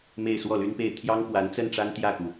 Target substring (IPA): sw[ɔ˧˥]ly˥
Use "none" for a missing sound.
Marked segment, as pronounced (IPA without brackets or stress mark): ɔ˥˩